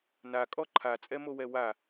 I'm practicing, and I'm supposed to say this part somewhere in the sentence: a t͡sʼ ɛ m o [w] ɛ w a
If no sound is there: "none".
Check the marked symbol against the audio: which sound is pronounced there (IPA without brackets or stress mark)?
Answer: w